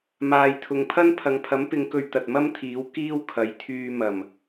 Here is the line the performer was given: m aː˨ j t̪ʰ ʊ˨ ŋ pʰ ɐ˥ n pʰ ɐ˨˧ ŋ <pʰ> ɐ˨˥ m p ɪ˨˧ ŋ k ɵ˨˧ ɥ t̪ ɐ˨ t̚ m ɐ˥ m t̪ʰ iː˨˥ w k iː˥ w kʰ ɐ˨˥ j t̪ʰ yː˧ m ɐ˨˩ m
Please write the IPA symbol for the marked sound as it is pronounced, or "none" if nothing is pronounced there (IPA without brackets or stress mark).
pʰ